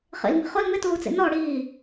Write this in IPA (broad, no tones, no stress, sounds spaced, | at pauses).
χ ḭ l m i̤ χ ʊ l m ɪ t uː t͡s ḭ n ɔ ɽ iː